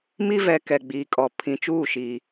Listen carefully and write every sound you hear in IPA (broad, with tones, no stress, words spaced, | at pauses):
mi˦vɛ˨ kɛ˨ɡ͡biː˨kʼɔ˨ pʰĩ˨t͡ʃuː˦˨ ʃiː˨